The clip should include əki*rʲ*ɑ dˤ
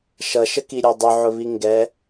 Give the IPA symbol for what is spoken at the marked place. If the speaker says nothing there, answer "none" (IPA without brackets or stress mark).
ɾʲ